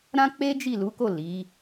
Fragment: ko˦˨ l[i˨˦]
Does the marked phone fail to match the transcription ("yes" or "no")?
no